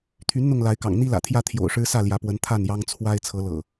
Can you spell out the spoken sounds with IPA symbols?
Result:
t̪ʰy˨˦n n̪ʊ˥˨ŋla˨˦ɪ̯kɑ̰˨˩ŋ n̪i˦lä̰˨˩t̪ʰjä˥˨ t̪ʰjo̰˨˩ʊ̯ʂɻ̩˦sä˥˨ ljä˨˦pwə˨˦n t̪ʰa˥˨njɑ˦ŋ t͡sʰwa˦ɪ̯ t͡sʰɤ˨˦lɤ̰˨˩

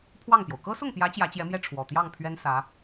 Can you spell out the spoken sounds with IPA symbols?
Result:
pʰwɑ˥˩ŋpjo˩ʊ̯ kɤ˥sʊ˥˩ŋpjä˧˥ t͡ɕjä˧˥t͡ɕjɛ˧˥mjɛ˥˩ ʈ͡ʂʰwɔ˨˩ t̪jɑ˥˩ŋpʰɥɛ˥n sä˧˥

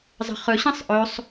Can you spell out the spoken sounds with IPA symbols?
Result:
zˤə̤χɵ ɕĩsˤʔɵsˤ

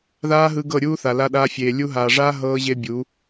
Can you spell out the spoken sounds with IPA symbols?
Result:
ðaː˦ɦɯ˧ ɡɤ˦˨ɾʲuː˦ θa˨la˧ɗaː˧fʲeː˨ lʲu˧ɦaː˨ʐaː˦ ɦɤː˦ʑe˦bʲu˨˦

